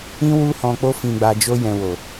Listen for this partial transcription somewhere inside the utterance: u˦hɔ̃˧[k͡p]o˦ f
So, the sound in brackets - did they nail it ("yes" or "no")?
yes